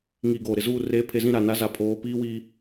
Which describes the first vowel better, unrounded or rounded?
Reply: unrounded